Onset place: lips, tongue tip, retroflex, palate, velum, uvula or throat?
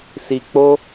tongue tip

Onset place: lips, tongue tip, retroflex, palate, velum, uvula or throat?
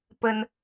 lips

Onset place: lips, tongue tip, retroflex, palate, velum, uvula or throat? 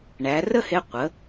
retroflex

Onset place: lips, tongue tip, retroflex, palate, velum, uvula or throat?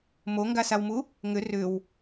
lips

